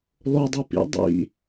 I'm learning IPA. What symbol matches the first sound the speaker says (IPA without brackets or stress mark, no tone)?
lˠ